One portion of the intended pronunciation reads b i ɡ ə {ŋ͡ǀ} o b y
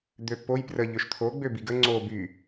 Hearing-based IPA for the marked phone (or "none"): ŋ͡ǀ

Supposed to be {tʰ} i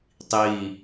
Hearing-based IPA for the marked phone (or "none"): tˤ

